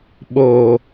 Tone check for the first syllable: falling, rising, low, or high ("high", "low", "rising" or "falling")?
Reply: low